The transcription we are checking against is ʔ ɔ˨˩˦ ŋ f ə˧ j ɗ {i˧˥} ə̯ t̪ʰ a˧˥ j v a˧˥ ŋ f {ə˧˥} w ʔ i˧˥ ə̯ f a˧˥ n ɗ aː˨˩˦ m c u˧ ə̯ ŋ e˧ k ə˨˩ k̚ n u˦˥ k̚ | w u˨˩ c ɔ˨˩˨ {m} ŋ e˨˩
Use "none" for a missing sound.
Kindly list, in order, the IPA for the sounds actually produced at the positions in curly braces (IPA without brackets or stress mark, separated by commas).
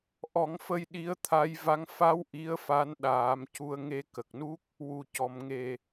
i˧˥, a˧˥, m